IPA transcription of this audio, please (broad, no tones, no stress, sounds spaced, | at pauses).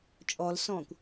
t͡ʃʼ ɔ l s ɔ̃ː kʷ